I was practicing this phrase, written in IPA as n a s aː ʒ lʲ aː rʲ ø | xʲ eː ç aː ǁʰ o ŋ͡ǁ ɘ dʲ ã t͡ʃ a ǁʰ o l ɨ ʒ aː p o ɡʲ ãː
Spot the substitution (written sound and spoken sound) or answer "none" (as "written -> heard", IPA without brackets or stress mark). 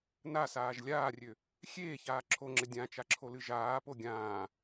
none